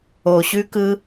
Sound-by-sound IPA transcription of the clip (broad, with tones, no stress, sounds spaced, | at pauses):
o˨ ɕ ʉ˧ k ɯ˧